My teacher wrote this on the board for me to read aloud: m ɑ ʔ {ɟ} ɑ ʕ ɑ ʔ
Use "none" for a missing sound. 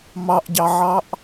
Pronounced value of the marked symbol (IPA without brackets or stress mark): ɟ